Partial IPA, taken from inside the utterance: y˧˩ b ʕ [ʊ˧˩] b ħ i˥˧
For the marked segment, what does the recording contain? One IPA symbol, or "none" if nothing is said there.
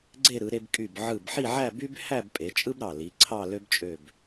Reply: ɯ˧˩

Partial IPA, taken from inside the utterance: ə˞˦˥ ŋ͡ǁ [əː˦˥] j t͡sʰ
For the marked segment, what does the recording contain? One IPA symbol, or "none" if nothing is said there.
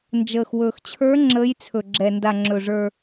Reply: əː˦˥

